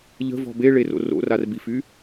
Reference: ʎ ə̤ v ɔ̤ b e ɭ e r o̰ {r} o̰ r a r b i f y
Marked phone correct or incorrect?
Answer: correct